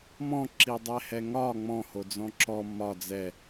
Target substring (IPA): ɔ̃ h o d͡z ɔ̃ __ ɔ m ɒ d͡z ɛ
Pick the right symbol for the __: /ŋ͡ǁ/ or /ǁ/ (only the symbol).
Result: ǁ